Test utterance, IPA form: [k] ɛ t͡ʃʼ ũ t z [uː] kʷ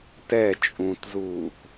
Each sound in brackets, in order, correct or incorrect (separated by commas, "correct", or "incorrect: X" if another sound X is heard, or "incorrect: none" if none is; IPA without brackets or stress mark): incorrect: t, correct